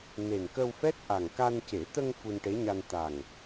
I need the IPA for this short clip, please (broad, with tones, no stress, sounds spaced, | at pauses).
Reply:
n e˨˩ n k ə˧ w f ɛ˦˥ t̚ ʔ a˨˩ ŋ k a˧ n c e˨˩˦ t̪ ə˧ ŋ f u˧ n ʈ e˧˥ ɲ a˧ n t̪ a˨˩ ŋ